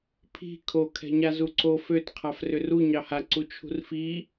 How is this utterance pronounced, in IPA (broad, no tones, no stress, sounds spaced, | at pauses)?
pʰ i̤ kʰ o kʰ ɛ̤ ɲ a z u ǀ o f ø t qʰ a f r ʏ r u ɲ ɑ h a ǀ u t͡ʃʰ ṳ r f i